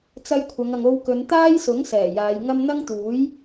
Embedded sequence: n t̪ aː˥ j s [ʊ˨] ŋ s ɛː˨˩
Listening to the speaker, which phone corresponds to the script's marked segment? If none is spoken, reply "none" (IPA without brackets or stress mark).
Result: ʊ˨˥